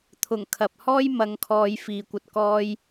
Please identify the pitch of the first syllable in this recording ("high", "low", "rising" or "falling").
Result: low